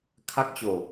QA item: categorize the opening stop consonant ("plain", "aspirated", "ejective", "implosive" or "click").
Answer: aspirated